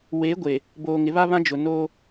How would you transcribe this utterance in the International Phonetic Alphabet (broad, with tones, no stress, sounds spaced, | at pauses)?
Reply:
w e˨˦ ɡʷ e˨ | b oː˨ ŋ ɪ˨˦ β a˦ β ã˦ d͡ʒ ʊ˨ n oː˦